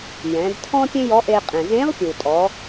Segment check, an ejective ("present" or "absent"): present